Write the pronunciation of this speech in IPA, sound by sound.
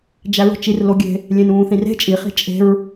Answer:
d͡ʒ æ ɹ o̤ t͡ʃ i r l o ɡʲ e̤ | lʲ ẽ n ũː θ ĩ r e̤ t͡ʃʼ i χ i̤ t͡ʃʼ e̤ ɹ

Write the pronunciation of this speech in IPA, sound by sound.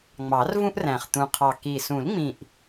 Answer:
ŋ͡m ɑ˨˩˦ r v ũ˦ ʔ r æ̃˨˩ χ t̪ ũ˨˩ qʰ ɑ˨˩ k i˨˩ s ũ˨˩˦ l ŋ͡m ĩ˨˩ ʔ

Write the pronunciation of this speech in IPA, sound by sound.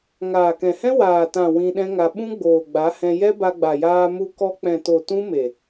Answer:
ŋ aː˨ k ɛ̃˨ h ɛ̃˦ w aː˨ t ã˨ w ĩ˧ ɗ ɛ̃˦ ŋ a˧ ɓ ũ˦ ɡ͡b oː˨ ɡ͡b a˨˦ h ɛ̃˧ j ɛ˦ b a˧ ɡ͡b a˨ j aː˧ m u˧ k ɔ˧ k͡p ɛ̃˨ t o˨ t ũ˦ m e˨

